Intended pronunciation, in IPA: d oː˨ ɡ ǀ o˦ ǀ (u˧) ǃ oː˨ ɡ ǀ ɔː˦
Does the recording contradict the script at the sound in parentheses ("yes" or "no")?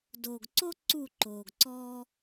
yes